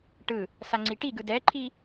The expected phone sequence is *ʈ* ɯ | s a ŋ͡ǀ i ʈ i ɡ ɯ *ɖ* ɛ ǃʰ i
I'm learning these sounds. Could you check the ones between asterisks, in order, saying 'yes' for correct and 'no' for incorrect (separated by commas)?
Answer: yes, no